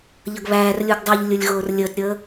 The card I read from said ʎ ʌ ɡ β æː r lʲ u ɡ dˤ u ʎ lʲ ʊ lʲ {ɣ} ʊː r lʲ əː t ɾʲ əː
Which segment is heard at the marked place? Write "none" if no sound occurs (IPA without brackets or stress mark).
ɣ